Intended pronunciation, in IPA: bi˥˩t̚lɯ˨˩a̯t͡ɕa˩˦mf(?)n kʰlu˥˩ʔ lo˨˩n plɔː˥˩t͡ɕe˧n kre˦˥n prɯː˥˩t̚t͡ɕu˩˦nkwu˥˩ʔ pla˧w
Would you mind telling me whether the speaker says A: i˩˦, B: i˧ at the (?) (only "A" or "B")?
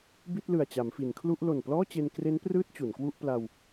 A